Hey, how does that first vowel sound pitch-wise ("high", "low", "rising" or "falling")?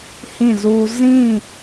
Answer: falling